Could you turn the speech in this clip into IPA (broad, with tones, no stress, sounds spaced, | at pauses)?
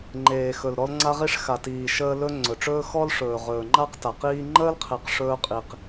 ŋ͡ǃ eː˨ x ɵ˨ l ɾ ɔ˦ l ŋ͡ǀ a˦ ʁ i˦ ʂ x a˨ t iː˨ ʃ əː˦ l ɵ˦ ŋ͡ǀ ɵ˨ ʈ͡ʂ ɵː˦ x ɔ˦ l ʂ ɵː˨ ʁ ɵː˨ ŋ͡ǃ a˦ q t a˨ q iː˦ ŋ͡ǃ əː˦ l qʰ e˨ q ʂ ɵː˦ qʼ i˨ q